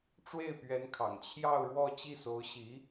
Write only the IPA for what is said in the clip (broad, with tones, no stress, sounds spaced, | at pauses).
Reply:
ʈ͡ʂ w e˥˩ ɪ̯ p ɥ ɛ˧˥ n kʰ ɑ̰˨˩ ŋ t͡ɕʰ j ɑ˥˧ ʊ̯ ɻ w ɔ˥˧ t͡ɕ i˥˩ s o˧˥ ʊ̯ ɕ i˧˥